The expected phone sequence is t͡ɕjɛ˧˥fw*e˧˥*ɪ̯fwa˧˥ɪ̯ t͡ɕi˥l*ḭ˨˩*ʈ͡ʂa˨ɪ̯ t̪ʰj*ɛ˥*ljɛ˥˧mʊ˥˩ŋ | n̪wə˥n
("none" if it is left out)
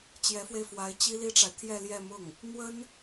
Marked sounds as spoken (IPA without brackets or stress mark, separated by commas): e˧, i˥, ɛ˥˧